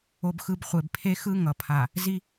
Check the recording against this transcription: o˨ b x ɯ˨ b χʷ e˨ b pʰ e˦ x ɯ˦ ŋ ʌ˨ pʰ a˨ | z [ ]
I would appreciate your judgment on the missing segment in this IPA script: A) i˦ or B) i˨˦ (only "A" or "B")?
A